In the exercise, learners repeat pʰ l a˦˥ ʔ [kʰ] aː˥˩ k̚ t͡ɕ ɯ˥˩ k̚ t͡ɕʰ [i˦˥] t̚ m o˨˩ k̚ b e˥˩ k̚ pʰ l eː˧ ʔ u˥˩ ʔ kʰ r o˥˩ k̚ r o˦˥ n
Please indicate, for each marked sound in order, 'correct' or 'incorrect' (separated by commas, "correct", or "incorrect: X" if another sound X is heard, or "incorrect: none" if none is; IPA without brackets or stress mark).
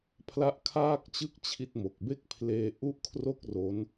correct, correct